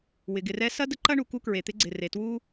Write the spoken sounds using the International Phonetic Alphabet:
w ɪ˩ ɡ ɪ˨ r ɛ˦ s ɐ˥ d ə˦ ǃ ɐ˥ ɳ u˩ k u˦ k ɹ e˩ t̪ ɪ˦ ɡ͡ǀ ɪ˩ r e˩ t w u˦

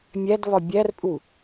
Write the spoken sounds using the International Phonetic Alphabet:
mʲ æ d β ɒ bʲ æ r pʼ u

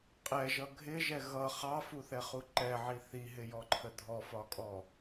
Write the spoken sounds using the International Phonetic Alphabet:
qʼ ɛ ʒ ʌ ɡʱ ɪ ʒ ɛ ɣ ʌ χ ɑ f u θ ɛ χ u ǃ ɛ ʕ i θ i ɦ ɪ j ɔ ǃʰ ə dʱ ɔ f ɒ kʼ ɔ

